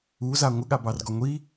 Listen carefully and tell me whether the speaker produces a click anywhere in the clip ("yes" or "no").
no